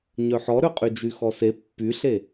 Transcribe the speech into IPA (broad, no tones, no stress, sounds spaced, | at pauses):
ɲ œ ħ ɔ ɾ ø qʼ y d͡ʒ y x ɔ s e pː y ɬ e